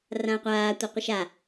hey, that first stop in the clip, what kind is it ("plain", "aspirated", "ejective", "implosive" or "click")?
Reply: plain